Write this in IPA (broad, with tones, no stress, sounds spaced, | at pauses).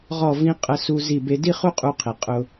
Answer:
ʁ ɔ˧˩ v ĩ˧ qʼ ə˧ s u˧ z i˧˩ b e˧ d i˥ χ u˥ qʼ u˧ qʰ i˩ qʼ ʊ˧